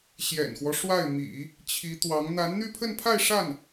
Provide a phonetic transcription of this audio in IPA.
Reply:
ɕ j ɛ̰˨˩ n x w ɔ˦ ʂ w a˥˩ ɪ̯ m ḭ˨˩˦ | t͡ɕʰ i˧˥ t̪ w ɑ˧˥ ŋ n̪ a˧˥ n n̪ y˥˧ pʰ ə˥˧ n pʰ a˥˧ ɪ̯ ʂ a˥˩ n

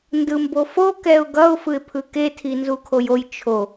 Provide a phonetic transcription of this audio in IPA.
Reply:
n d ɯ m b o f o k ɛ ʊ̯ ɡ ʌ ʊ̯ f ɯ ɪ̯ pʰ ɯ k e tʰ i n z u kʰ o j o j t͡ʃʰ o

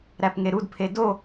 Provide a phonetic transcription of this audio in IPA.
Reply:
ɾ æ p ŋ e ɾ u d pʰ e d o

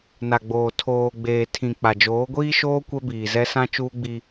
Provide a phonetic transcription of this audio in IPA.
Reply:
n a˨ ɡ͡b oː˨ tʰ oː˨ ɡ͡b eː˨ tʰ ĩ˨ k͡p a˨ d͡ʒ oː˨˦ ɡʷ iː˦ ʃ oː˦ kʷ ɛ˦ b iː˨ z ɛ˦ s ã˦ t͡ʃ uː˦ ɡ͡b i˦

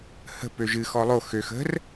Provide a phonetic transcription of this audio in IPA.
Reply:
h ə̤ p ø ʒ ɨ x ɔ lˠ o x ø x ə̤ r

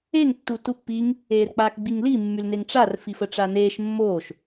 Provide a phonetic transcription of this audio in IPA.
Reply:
e ŋ tː u t u pː i ŋ | eː r k͡p aː k ɡ͡b i ŋ l i mː y l n e ŋ ʈ͡ʂ a r f i f ə ʈ͡ʂ a n eː ʃ mː oː ʃ

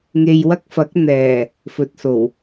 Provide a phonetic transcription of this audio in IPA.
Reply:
ŋ e˨ j w ɐ˧ k̚ f ɐ˨˥ k̚ n̪ ɛː˨˩ | f ɵ˨ t̚ s o˨˩ w

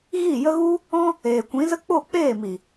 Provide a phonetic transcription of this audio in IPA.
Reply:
ɣ i˦˨ j ə˦ ɣ u˦ | ɔ̃˦ | eː˨ kʷ ĩ˨˦ z ə˦ k͡p o˦˨ k͡p eː˦˨ m i˨

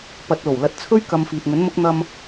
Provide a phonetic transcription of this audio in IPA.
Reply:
p ɐ˨ t̚ l o˨˩ w l ɐ˨˥ t̚ t͡sʰ ɵ˥ ɥ k ɐ˧ m f iː˨ t̚ ŋ ɵ˨˥ n m ʊ˥ k̚ n̪ ɐ˧ m

